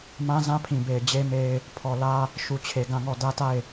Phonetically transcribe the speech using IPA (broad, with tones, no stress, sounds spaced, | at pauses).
m ã˦ z ã˦ pʰ ĩ˨ b e˨ ɪ̯ d͡ʑ e˦ m e˦ ɪ̯ | pʰ ɔ˨ l ä˦ | ʃ u˨ t͡ɕʰ e˨ ɡ ã˦˨ ŋ ɔ˦˨ d ä˦ t a˦˨ ɪ̯